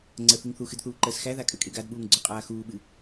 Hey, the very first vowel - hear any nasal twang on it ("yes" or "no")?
no